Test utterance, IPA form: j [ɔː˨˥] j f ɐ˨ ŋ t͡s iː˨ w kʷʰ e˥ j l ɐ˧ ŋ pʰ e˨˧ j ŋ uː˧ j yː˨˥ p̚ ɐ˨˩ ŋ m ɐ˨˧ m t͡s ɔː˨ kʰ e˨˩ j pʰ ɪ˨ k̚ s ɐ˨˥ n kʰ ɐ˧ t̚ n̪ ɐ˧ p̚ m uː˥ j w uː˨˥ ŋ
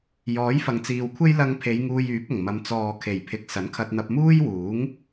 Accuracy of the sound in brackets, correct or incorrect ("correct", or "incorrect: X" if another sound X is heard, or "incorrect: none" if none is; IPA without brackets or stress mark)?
correct